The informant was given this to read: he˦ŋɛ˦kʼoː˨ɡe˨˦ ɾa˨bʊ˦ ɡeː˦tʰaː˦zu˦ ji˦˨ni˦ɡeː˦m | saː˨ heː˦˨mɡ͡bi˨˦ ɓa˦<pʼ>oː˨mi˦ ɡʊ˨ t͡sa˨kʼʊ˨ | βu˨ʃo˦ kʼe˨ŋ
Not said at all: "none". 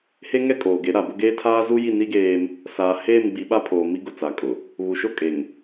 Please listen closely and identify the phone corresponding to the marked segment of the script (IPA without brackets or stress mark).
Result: pʰ